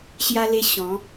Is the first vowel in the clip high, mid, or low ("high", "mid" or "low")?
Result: low